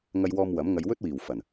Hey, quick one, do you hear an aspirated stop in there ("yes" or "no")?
no